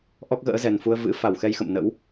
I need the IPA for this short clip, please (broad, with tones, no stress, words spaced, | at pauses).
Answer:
ʔɔ˦˥k̚ɣə̰ː˧˥zɛ˨˩n fu˧ə̯ vɨ̰˧˥ fa˧˩wxɛ˧j xə̰˧˨mnə̰˧˥w